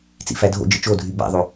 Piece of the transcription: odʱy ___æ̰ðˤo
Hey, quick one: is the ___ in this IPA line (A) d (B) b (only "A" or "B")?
B